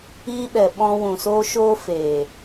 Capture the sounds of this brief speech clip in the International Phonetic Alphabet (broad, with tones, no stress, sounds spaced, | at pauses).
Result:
iː˦ ɓ ɛ˨ ɓ ɔ̃˧ w ũ˨ s oː˦ ʃ oː˦ f eː˨